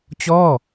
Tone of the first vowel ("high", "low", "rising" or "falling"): falling